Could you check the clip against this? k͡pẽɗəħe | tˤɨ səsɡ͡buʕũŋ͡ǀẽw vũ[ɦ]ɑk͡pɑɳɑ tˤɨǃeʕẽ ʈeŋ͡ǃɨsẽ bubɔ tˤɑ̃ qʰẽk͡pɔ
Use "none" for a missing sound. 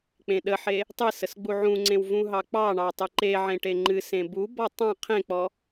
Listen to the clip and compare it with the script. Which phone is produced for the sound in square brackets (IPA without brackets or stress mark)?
ɦ